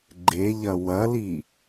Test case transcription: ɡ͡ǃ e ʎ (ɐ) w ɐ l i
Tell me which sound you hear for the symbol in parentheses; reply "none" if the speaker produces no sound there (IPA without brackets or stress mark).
ɐ